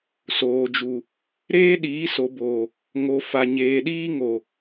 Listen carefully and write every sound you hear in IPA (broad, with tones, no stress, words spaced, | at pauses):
soː˨d͡ʒu˨ | ɾeː˦ɗiː˨˦so˨boː˨ | ŋo˨ fa˨ɲeː˨ɗiː˦ ŋo˨